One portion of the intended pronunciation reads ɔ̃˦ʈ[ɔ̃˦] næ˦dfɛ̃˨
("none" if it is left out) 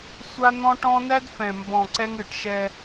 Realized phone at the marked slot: ɔ̃˦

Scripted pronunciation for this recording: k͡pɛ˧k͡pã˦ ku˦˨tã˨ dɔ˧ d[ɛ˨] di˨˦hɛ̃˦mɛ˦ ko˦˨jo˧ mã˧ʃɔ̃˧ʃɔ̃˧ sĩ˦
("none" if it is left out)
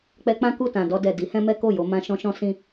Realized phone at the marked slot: ɛ˨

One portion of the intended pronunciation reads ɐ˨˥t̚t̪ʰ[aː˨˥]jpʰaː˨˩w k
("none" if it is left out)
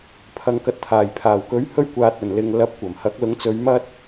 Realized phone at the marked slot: aː˨˩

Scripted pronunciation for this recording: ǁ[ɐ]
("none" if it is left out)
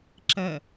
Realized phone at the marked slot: ɐ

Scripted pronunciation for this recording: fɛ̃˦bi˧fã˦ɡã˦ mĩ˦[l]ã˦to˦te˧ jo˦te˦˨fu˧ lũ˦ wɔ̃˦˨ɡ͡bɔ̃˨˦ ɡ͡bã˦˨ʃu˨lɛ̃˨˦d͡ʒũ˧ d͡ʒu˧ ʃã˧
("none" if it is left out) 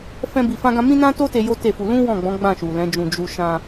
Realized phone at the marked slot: n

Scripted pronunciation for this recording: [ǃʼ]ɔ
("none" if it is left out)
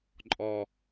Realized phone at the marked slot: ǃʼ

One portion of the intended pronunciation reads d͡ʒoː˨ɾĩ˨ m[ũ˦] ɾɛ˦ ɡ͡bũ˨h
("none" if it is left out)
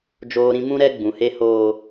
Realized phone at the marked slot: ũ˦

